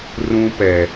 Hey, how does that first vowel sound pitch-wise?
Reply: high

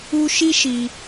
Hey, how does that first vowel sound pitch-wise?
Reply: high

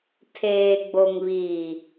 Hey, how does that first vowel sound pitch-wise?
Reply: low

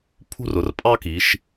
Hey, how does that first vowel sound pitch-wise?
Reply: high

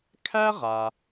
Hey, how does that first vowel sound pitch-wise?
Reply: high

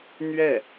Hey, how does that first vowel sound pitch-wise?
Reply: falling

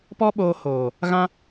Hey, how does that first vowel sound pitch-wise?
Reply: high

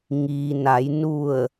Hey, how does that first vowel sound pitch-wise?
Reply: low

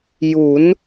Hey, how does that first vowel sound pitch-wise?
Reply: rising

